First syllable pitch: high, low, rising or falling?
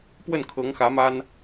falling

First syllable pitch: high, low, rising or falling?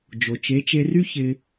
low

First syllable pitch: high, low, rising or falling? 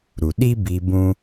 low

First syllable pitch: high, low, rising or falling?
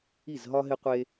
falling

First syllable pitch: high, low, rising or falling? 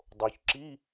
low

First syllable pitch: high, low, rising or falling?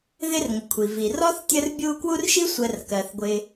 high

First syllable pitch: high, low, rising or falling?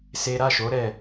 high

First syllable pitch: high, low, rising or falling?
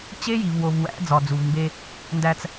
high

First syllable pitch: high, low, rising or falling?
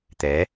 rising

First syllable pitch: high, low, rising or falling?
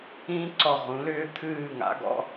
high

